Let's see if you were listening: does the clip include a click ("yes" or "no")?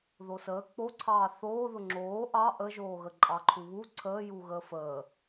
yes